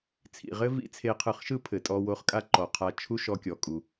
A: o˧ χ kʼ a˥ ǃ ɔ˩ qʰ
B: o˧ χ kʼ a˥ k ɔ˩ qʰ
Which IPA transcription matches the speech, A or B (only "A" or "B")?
A